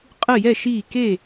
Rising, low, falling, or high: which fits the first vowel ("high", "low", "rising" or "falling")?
falling